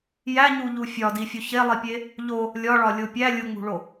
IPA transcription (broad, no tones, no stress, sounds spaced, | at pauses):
j æ ɲ u ʎ u fʲ ɒ d i fʲ o ç e lˠ i pʲ e | ʎ o | lʲ ɒ ɭ ɒ lʲ o pʲ æ lʲ u ŋ͡m ṳ ɭ o